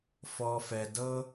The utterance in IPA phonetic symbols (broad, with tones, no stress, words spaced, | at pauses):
fɔ˨fɛ˨ dɤ˧